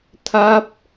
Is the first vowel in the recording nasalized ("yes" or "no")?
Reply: no